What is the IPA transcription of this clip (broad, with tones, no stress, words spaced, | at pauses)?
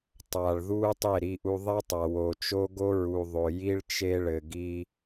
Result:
tˤa˨ɭðu˦tˤe˦˨ ɾi˦ʔu˦ ðˤɛ˦tˤa˨wo˨t͡ʃo˦ ɡo˦ɹu˨ ðˤo˨ji˦ɭ t͡ʃe˦ɭɘ˨ɡi˦